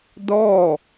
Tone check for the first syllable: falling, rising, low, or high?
falling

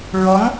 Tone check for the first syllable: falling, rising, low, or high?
rising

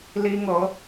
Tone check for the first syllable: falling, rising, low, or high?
high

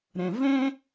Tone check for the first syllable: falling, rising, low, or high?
low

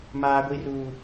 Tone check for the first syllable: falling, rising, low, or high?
high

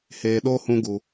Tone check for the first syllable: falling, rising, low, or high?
low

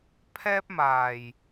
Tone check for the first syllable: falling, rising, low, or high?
high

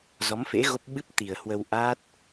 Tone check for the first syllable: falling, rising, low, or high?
rising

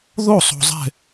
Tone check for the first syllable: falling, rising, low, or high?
falling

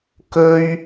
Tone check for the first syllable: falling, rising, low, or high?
high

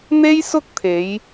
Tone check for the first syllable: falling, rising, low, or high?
high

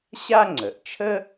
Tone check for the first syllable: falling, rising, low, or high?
high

